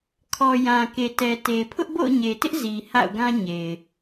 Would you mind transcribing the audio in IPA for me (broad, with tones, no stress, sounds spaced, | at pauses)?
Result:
kʰ ɔ˨ j ã˨ k e˨ t ɛ˨ t e˨ pʰ ʊ˦ ʔ b o̰˦˨ ʊ̯ ɲ e˨ t ɪ˦ ʔ z i˨ h a̰˦˨ ʊ̯ ɡ ã˦ ɲ e˨ ɪ̯